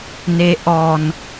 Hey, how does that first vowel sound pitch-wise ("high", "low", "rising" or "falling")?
rising